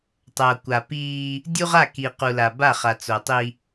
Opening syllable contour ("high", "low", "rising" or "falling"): low